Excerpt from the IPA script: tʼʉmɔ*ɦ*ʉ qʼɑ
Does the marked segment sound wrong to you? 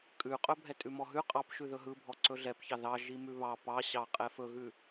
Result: no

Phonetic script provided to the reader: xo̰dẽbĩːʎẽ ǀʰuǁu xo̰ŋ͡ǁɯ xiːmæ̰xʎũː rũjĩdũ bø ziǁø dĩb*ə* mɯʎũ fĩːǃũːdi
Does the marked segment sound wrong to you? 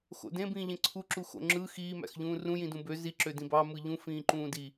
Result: yes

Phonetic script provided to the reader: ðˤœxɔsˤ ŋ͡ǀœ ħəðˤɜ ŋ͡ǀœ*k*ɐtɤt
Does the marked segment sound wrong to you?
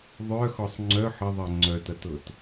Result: yes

